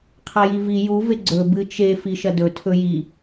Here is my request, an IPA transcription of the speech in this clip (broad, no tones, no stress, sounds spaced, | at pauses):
qʰ a j i v i j u v e ɡ͡ǀ ɵ b ɨ t͡ʃ e f i ʃ ɐ d ɵ tʰ ɵ j i